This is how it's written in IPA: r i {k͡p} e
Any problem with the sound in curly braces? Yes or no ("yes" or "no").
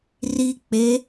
no